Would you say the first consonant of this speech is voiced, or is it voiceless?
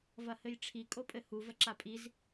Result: voiced